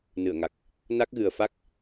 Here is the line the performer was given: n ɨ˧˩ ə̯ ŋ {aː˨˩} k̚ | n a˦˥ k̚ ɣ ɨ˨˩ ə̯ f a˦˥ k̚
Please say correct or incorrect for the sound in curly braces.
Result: incorrect